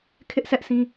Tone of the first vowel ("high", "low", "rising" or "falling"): high